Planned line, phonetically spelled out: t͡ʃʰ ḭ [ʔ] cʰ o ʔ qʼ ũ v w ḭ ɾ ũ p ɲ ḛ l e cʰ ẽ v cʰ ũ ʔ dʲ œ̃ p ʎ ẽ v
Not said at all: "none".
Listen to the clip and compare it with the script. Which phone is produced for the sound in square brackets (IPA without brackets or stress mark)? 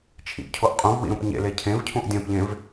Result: ʔ